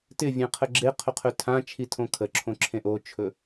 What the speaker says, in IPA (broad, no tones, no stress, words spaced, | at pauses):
tɪvʲẽqʰə ɡ͡ǁeqʰɵqʰɵ tʰãt͡ʃʰitʰõ kʰəǁʰõǁʰẽ ʔot͡ʃʰɵ